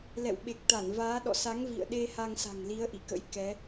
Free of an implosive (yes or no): no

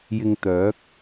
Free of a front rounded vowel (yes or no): no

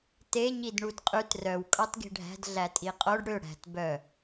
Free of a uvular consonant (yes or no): no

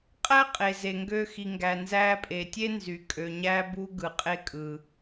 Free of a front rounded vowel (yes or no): no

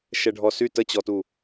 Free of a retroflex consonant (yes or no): no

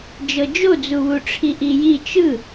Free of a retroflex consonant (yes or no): no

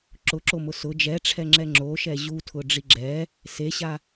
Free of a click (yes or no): no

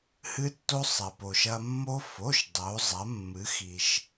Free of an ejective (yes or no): yes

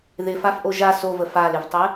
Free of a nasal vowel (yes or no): yes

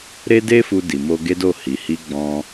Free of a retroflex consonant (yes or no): yes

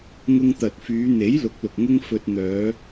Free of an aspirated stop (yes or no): yes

